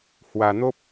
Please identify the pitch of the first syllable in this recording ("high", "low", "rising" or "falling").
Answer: low